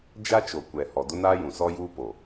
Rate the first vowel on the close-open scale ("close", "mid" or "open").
open